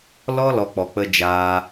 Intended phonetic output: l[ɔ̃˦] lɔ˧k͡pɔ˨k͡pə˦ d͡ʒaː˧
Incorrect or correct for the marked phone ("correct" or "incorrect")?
incorrect